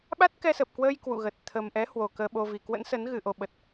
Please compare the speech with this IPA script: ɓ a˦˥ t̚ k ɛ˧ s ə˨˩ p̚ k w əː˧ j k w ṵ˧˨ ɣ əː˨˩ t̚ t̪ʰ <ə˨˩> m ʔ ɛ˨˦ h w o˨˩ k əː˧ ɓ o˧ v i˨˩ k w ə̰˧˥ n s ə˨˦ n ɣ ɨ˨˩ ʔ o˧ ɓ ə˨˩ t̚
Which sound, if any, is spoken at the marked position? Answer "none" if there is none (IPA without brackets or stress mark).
ə˨˩